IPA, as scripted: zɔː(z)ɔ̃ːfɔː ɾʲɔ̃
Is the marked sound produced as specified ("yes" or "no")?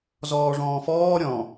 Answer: no